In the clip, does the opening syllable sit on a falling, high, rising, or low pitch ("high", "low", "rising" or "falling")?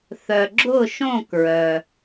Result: low